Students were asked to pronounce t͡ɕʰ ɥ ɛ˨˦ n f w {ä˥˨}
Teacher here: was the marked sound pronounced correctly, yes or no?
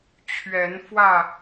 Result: yes